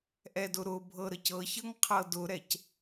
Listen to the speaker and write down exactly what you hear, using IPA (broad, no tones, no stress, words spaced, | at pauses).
ʔɛdʊɾʊbʱɤ ɾəcɤçɤŋ qʰɤdʊɾɛc